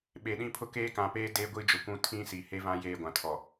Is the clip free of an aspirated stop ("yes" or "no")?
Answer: no